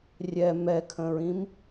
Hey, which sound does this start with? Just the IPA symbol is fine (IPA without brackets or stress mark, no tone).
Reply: rʲ